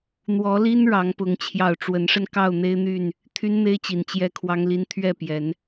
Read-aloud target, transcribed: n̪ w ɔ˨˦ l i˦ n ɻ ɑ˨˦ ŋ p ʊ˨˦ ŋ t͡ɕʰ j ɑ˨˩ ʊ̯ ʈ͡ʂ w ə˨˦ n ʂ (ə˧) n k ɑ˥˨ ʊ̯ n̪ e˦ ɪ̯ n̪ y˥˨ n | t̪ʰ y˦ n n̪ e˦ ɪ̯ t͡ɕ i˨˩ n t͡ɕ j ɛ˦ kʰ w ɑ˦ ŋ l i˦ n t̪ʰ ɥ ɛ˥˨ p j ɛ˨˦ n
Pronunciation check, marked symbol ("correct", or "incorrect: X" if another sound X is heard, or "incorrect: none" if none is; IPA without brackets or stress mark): correct